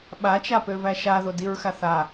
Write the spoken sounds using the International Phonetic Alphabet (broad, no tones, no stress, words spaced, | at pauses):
ɓat͡ʃapøvæ ʃaðodiɹxaθ a